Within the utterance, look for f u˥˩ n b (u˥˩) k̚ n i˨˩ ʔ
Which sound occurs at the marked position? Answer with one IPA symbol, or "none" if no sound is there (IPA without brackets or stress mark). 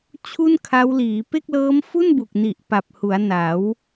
u˨˩